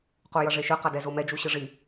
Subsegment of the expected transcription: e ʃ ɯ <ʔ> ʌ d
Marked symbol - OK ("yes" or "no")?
no